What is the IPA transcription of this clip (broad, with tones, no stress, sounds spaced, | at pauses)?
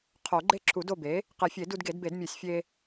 qʰ o˨˩˦ ɡ͡ǃ e˥˨ ǁʰ u˨˩˦ d o˥˨ b e˩˥ | q e˨˩˦ fʲ e˨˩˦ d u˧ d ɡ e˨˩˦ d b e˨˩˦ d mʲ o˨˩˦ sʲ fʲ e˧